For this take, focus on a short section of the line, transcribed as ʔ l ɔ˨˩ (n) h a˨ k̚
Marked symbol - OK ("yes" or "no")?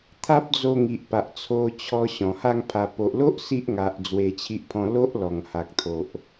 no